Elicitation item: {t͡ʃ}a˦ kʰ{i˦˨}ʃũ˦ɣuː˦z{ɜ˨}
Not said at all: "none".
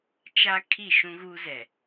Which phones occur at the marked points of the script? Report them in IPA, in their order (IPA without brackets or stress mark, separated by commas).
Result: t͡ʃ, i˦˨, ɛ˨